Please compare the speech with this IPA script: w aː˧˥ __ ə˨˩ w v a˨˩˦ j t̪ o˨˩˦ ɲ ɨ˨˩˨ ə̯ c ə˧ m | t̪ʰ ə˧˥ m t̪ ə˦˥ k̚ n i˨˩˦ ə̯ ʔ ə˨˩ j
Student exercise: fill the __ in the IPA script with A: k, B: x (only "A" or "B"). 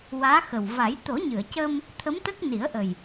B